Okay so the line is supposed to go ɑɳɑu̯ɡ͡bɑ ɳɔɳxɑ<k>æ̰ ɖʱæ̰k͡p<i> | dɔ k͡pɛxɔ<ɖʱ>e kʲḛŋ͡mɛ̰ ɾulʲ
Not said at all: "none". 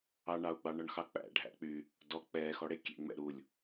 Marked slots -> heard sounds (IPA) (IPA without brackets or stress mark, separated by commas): k͡p, y, ɽ